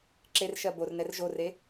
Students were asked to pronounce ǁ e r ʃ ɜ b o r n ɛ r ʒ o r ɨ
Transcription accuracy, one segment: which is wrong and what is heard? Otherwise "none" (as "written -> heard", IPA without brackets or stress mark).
ɨ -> e